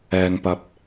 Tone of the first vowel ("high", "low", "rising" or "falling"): low